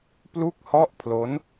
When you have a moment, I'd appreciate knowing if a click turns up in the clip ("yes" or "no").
no